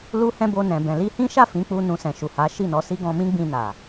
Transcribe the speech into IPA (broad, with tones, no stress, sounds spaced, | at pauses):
l u˦ h ɛ̃˦ b o˧ n ɛ̃˨ b ɛ̃˨ l i˧ h ĩ˦ ʃ a˦˨ f ĩ˨˦ k͡p u˧ n ũ˧ s ɛ̃˨ ʃ u˨ h a˨˦ ʃ i˦˨ n ɔ˨˦ s i˦ ɡ ɔ̃˧ m ĩ˦ ɡ͡b ĩ˧ n a˨